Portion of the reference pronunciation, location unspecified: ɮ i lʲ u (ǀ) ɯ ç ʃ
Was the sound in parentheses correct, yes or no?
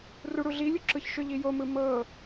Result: no